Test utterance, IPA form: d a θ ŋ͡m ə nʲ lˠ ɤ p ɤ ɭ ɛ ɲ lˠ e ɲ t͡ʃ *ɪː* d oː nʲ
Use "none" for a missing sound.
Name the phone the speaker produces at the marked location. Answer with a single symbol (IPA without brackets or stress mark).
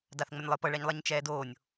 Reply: ɛː